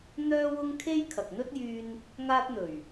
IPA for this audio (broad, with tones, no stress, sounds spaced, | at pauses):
n̪ œː˥ w ʊ˥ ŋ kʰ e˥ j kʰ ɐ˨ k̚ n̪ ɵ˥ t̚ j yː˧ n | ŋ aː˥ t̚ n̪ ɵ˨˩ ɥ